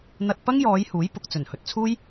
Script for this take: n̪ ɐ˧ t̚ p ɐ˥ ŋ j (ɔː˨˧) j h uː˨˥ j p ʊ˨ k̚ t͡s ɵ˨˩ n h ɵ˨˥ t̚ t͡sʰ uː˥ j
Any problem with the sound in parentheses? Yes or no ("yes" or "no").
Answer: no